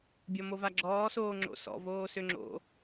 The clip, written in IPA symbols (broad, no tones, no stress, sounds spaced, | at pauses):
bʲ ɔ m o v a ɡ͡ǁ ɔː s oː ŋ͡ǁ o̰ s ɔ̰ v oː s ø ŋ͡ǁ o̰